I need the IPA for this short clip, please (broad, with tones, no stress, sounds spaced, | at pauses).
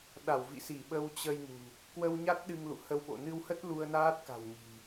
ɗ a˧˩ w v ḭ˧˨ s i˧˩ ɓ ə˧ w t͡ɕ ə˧ j n ṳ˨˩ | k w ə˧ w ɲ a˦˥ t̚ ɗ ɨ˧ ŋ l ṵ˧˨ h ə˧ w ɓ o̰˧˨ n ɨ˧ w h ə˦˥ t̚ l u˧ ə̯ n aː˦˥ t̚ k a̤˨˩ w ɲ i̤˨˩